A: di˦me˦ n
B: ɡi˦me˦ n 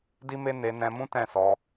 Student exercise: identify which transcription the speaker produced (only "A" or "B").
A